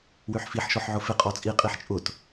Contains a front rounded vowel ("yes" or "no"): yes